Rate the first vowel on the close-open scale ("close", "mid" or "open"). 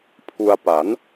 close